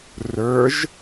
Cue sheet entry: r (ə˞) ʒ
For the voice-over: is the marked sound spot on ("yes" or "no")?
yes